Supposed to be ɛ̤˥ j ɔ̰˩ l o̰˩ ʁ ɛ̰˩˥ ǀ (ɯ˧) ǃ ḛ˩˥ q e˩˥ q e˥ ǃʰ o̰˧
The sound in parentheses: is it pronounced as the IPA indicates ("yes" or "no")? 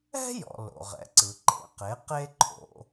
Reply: no